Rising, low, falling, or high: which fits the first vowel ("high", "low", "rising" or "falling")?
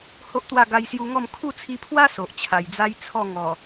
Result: high